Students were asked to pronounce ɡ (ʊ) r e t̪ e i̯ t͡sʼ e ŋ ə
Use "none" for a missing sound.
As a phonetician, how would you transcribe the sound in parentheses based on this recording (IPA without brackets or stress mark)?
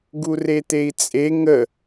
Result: u